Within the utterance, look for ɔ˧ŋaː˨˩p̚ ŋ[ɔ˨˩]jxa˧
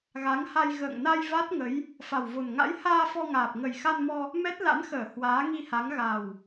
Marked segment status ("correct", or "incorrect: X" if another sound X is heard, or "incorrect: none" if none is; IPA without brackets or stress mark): incorrect: ə˨˩